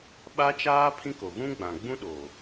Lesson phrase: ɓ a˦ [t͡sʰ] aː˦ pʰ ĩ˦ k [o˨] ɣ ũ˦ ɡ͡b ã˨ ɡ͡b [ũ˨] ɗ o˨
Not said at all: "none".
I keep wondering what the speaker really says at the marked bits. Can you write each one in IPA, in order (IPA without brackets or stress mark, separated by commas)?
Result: t͡ʃ, o˨, ũ˦